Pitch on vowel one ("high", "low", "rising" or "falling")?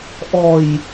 low